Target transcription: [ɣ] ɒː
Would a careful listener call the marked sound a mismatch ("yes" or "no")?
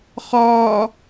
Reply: yes